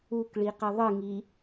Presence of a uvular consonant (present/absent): present